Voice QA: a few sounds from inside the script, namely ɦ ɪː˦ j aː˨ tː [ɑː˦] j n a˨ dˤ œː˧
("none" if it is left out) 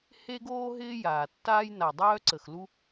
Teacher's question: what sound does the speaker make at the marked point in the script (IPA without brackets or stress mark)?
aː˦